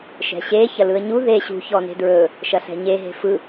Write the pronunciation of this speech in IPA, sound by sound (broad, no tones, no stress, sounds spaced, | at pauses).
ʃ ɛ̤ ɕ e ç ɐ l ɯ ə̯ ɲ u ð e ɕ ṳ ç ɔ n e̤ d ɹ ɵ | ʃ ɐ ɬ ɛ̤ ɲ e ɦ e̤ f ɯ